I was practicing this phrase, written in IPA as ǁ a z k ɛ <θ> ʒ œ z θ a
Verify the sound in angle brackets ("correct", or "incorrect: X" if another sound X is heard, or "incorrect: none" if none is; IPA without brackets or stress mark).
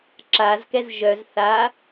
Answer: incorrect: z